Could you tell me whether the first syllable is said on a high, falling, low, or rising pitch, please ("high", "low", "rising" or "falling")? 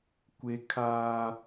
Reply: high